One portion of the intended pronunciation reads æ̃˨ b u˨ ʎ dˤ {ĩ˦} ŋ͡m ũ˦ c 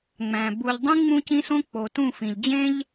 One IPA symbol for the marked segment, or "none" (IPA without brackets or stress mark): ĩ˦